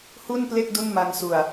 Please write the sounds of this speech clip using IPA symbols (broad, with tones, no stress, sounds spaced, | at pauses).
h u˥˩ n p l e˥˩ k̚ d u˥˩ n m a˧ ŋ s u˨˩ a̯